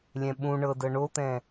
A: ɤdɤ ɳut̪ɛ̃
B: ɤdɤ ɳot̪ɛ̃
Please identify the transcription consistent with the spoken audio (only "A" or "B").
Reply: B